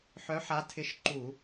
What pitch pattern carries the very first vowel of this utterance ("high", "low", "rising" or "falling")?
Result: rising